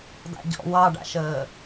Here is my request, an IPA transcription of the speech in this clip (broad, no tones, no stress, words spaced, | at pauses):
da̰ɟɔ̰ wɑɖa̰ʃəː